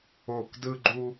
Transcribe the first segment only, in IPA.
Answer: o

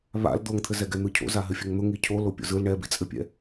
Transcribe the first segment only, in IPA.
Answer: β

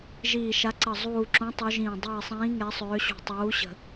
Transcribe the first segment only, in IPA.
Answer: ʒ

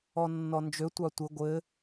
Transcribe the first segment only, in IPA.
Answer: ɔ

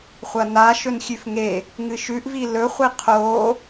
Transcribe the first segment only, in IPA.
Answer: χʷ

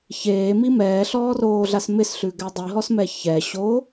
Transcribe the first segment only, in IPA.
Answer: ç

